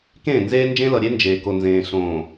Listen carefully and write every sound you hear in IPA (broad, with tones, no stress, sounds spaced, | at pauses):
k ẽː˦˨ n z eː˦ n d͡ʒ ẽ˦ l ʌ˨ ɾʲ e˦ n d͡ʒ eː˨ k o˨ n z ẽː˨ ɬ õː˨